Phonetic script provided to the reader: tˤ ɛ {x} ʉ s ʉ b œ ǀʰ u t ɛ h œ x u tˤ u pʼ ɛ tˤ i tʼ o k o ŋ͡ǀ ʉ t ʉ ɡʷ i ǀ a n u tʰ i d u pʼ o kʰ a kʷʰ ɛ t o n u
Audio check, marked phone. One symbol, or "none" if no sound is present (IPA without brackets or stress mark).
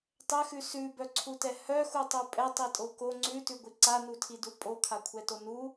x